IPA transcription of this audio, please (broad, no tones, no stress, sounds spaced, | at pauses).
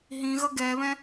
ɦ ĩ ɣ ʌ ɡ ɛ β ɛ̃